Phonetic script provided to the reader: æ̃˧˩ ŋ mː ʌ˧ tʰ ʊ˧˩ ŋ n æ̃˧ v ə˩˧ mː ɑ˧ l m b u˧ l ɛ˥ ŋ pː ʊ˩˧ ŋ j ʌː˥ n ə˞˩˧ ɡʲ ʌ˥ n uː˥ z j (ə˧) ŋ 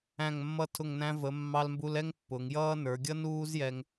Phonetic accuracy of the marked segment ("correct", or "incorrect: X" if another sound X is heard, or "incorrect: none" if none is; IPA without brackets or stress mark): incorrect: ɛ˧